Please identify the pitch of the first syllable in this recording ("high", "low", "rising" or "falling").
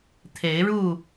rising